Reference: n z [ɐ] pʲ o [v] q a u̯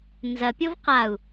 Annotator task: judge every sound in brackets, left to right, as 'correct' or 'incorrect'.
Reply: correct, correct

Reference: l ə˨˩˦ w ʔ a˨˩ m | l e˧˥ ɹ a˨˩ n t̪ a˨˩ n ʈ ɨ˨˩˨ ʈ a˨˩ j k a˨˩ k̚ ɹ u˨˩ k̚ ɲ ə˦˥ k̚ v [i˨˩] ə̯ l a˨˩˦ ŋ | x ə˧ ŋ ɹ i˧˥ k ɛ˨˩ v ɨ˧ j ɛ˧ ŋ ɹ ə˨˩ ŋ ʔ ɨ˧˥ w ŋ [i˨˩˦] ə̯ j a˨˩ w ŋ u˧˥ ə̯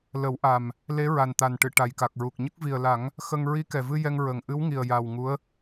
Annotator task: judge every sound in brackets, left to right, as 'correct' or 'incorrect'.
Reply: correct, incorrect

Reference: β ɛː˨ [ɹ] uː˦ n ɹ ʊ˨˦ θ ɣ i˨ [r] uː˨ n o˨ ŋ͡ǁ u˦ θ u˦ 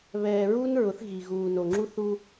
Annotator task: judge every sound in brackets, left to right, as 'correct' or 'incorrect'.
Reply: correct, incorrect

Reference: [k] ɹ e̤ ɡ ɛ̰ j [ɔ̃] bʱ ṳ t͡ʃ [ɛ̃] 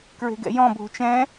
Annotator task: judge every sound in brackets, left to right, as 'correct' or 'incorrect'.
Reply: correct, correct, correct

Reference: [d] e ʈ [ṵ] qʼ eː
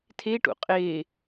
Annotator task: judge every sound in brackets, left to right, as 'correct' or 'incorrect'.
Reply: incorrect, correct

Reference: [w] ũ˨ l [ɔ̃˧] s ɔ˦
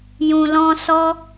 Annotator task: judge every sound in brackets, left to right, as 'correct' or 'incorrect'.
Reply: incorrect, correct

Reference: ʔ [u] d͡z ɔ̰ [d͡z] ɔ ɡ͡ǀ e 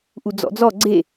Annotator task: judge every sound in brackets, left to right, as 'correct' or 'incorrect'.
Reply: correct, correct

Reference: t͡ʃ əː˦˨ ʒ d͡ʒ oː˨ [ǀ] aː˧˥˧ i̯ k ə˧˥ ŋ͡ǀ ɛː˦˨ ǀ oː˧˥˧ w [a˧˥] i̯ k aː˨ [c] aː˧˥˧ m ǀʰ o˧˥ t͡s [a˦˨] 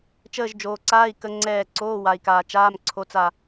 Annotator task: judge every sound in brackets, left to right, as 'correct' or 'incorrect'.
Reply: correct, incorrect, incorrect, correct

